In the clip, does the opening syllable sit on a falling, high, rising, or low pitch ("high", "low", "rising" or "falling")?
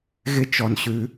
high